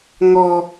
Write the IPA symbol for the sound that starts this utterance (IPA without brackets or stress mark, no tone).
ŋ